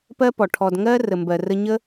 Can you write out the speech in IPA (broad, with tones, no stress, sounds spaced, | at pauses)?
p ɜ˦ p ɔ˨ ʈʰ ɔ˧ d ŋ ɜ˦ r ə˨ m b ɜ˨ r ə˧ ɲ ə˦